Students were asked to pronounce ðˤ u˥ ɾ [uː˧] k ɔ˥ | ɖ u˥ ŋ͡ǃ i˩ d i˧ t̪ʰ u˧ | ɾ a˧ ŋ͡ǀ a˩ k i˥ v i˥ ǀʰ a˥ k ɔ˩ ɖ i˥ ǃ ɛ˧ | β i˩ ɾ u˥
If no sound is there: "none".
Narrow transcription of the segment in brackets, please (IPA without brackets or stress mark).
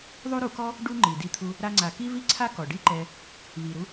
u˧